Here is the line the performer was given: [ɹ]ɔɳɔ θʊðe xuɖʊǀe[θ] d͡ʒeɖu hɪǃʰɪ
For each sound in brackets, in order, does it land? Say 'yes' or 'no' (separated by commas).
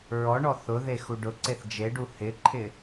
yes, yes